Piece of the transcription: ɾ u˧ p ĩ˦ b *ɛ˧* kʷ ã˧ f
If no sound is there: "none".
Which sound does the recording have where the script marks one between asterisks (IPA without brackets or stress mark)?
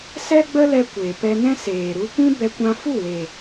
ɛ˧